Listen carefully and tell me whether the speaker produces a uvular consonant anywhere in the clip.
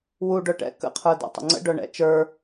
yes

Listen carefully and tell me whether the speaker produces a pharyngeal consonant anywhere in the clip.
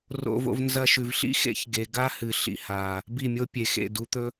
no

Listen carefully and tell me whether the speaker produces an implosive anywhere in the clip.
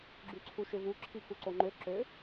no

